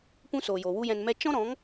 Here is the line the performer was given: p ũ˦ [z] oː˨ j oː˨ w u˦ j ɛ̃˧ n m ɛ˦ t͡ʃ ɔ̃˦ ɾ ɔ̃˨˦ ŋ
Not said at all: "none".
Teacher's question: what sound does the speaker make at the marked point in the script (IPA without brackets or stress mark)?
s